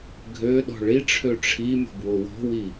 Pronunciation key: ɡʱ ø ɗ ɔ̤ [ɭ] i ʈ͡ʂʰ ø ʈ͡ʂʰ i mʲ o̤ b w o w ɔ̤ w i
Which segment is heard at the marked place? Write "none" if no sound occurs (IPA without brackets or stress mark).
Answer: ɭ